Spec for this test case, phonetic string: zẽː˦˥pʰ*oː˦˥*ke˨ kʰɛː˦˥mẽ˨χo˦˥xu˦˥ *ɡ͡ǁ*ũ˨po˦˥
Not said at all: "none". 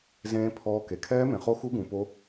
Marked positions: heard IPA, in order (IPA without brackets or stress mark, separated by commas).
ɔː˦˥, ɡ